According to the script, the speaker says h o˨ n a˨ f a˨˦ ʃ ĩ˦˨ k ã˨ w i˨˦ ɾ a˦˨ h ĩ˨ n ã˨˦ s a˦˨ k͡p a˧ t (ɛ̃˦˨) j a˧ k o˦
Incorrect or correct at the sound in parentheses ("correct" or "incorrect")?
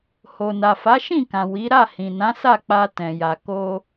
incorrect